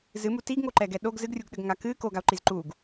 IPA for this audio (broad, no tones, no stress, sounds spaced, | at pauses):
z ɨ m u t i ɡ ŋ o ǃ ɛ ɡ ɛ ɗ o ɡ z ɨ ɡ rʲ u ɡ ɗ ɘ ɡ ŋ a k ɨ k o ɡ a o̯ ǃ i z ǃ u ɡ